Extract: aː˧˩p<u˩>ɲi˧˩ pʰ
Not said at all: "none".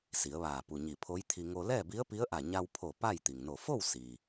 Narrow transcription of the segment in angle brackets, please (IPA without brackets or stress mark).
u˩